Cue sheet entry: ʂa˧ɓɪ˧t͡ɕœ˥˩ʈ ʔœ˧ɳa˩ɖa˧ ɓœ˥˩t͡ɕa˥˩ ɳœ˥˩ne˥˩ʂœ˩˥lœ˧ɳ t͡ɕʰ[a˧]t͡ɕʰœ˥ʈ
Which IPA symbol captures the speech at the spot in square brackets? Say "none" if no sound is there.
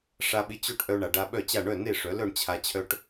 a˧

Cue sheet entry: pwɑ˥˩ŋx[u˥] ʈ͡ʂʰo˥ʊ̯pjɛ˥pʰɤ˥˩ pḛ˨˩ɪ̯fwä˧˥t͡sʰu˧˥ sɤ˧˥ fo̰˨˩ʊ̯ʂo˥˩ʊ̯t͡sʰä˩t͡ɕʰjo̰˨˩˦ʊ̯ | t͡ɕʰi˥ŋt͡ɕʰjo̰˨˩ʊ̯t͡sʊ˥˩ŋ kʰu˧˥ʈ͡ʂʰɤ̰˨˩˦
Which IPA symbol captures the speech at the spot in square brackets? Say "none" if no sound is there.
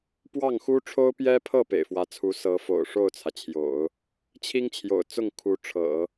u˥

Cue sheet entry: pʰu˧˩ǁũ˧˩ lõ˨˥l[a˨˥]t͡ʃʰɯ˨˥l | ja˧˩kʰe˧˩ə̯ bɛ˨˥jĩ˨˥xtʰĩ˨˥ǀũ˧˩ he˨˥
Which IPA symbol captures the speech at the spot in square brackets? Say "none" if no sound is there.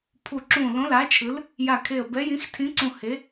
a˨˥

